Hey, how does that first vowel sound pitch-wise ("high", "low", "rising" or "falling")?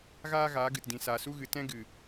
high